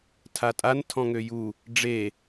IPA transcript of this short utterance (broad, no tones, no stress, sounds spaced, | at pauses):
tʰ a tʼ a n tʰ ɔ̃ ŋ ø j u | ɖ͡ʐ e